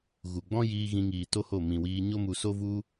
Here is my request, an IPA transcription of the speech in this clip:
ɣu˨ ɡ͡bɔ̃˦jiː˧ ɣĩ˧ŋiː˨to˦ho˦˨ mĩ˨wiː˧ ɲo˦mu˧so˦ vu˧

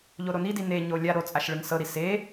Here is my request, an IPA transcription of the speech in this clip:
ʎoɾonidi neɲo lʲaɾo t͡sʼaʃɭɯŋsɤɾi se

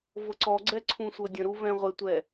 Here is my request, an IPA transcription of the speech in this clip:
vɤǀɔɡ͡ǀɛ ǀʰũsʷɤdʲə̃ɾu vɛ̃ʁʷɪtʷɛ

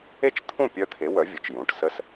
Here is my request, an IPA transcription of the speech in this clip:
e˥˨t͡ʃt̪ʰũ˥˨ pʲœ˦˥t̪ʰe˨˥wœ˨˥vʲɨ˩˧t͡ʃ jũ˩˧˩ʈsə˦˥s

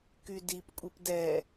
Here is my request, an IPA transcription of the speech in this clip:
kydipkʷʼip dɛ

